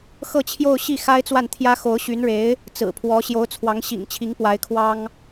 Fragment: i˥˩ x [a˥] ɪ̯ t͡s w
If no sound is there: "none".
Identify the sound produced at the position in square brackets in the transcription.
a˥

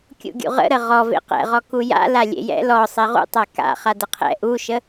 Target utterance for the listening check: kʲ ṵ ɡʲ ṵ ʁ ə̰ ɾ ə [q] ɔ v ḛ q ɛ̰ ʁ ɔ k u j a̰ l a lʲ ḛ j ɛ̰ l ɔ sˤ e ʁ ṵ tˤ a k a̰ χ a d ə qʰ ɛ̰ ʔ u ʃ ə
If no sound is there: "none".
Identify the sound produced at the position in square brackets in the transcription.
ʁ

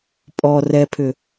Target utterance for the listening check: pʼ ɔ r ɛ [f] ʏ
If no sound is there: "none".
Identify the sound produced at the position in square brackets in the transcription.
pʰ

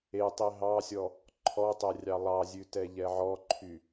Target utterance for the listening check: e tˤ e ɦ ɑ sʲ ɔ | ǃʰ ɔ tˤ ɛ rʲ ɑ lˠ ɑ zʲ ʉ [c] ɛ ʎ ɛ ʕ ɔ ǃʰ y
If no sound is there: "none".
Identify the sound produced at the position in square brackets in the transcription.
t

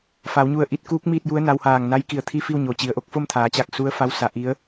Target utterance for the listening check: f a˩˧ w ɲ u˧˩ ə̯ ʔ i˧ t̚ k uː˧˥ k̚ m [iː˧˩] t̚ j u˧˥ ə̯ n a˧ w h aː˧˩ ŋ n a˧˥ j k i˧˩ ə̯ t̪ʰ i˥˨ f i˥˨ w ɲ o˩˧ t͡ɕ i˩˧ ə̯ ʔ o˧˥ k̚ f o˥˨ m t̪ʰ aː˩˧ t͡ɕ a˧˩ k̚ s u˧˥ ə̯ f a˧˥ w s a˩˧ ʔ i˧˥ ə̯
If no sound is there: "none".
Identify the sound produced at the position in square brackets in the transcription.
iː˥˨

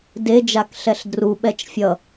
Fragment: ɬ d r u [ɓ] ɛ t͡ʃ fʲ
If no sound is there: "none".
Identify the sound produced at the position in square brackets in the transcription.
ɓ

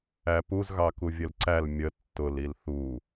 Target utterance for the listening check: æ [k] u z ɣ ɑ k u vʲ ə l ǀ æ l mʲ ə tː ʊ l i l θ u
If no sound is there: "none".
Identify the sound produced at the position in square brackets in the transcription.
p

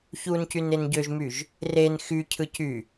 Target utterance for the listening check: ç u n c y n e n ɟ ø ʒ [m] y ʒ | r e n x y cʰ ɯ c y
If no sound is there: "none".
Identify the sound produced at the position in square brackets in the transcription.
m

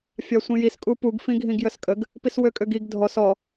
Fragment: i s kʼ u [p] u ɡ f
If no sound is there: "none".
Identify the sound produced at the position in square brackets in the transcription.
p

